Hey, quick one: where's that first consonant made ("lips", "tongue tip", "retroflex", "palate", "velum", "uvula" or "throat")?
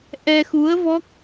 throat